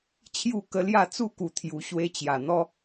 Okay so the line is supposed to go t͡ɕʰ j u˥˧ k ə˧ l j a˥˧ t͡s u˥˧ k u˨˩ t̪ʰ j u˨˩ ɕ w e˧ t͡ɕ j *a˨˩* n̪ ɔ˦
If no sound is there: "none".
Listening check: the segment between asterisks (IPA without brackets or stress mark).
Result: a˨˩